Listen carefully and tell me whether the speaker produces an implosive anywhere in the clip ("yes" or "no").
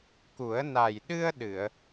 yes